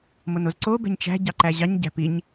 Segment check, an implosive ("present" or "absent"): absent